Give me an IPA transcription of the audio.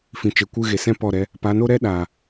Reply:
f ĩ˨ t͡ʃ e˨ kʷ ɨ˦˨ ɣ e˨ s ɛ̃˦ p ɔ˦˨ ɾ ɛ˦ | p a˨˦ n o˦ ɾ ɛ˦ ɗ aː˨

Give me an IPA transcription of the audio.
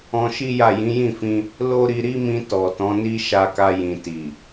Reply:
ɔ̃˧ ʃ i˦ j a˦˨ j ĩ˨˦ j ĩ˦˨ f ĩ˧ | l o˦ ɾ i˧ ɾ i˦ m ĩ˧ t ɔ˨ t ɔ̃˨˦ n i˦ ʃ a˧ k a˧ j ĩ˨ t i˨

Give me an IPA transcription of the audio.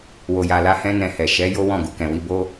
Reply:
w o˨ j a˨ l a˧ h ɛ̃˦ n ɛ̃˧ h ɛ˨ ʃ ɛ˨˦ j o˦ w ɔ̃˦˨ ɡ u˨ k ɛ̃˨ w i˧ b o˦

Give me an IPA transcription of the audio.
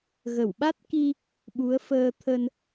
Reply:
ɣ ə˧˩ w ɓ a˦˥ t̚ k i˧ | ɓ u˨˦ ə̯ f əː˧ t̪ʰ ə˧ n

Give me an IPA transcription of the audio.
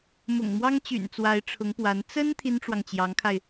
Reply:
m ʊ̰˨˩ ŋ m w ɑ˥ ŋ t͡ɕ y̰˨˩ n t͡s w a˧˥ ɪ̯ ʈ͡ʂʰ ʊ˧˥ ŋ p w a˧˥ n t͡s ə˥ n t̪ʰ i˥ n ʈ͡ʂ w ɑ˨ ŋ t͡ɕ j ɑ˧˥ ŋ kʰ a˧ ɪ̯

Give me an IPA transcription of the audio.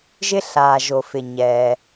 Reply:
ʒ ɪ˥ ɬ aː˨ ʒ o˨ f ɪ˨ ɲ ɛː˨

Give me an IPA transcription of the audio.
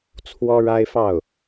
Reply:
t͡sʰ w ɔ˥ ɻ a˥ ɪ̯ f ɑ˥˩ ʊ̯

